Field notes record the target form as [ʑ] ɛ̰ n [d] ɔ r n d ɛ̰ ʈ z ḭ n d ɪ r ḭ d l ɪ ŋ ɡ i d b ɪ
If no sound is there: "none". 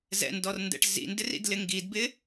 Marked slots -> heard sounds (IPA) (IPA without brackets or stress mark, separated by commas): z, d